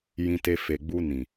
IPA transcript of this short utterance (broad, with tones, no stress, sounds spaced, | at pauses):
j ĩ˧ t e˧ f e˨ ɡ͡b u˧ n ĩ˨